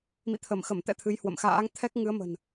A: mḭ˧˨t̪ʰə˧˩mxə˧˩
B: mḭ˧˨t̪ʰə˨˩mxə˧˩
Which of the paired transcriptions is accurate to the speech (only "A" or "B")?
A